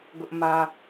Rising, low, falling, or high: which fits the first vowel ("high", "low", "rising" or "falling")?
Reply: high